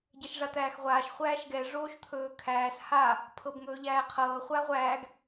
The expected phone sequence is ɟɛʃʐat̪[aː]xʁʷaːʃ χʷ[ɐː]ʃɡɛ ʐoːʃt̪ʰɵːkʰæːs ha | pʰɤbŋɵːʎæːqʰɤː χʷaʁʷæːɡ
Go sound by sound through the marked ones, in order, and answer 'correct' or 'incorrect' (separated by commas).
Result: incorrect, incorrect